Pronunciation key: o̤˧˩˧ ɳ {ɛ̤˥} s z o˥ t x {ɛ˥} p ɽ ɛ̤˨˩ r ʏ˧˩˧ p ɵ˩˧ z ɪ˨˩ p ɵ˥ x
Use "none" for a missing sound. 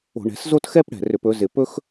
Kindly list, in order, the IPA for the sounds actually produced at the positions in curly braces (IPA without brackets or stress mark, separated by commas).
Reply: ɛ̤˩˧, ɛ˥